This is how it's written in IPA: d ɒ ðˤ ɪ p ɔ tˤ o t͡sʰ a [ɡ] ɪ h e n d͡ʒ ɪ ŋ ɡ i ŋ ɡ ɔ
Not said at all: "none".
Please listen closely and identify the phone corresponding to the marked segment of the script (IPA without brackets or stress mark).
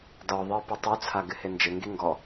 ɡ